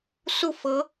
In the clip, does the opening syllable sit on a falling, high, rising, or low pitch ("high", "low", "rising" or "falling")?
falling